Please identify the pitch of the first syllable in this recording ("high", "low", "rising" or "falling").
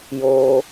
high